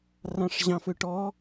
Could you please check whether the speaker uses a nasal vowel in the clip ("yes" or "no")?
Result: yes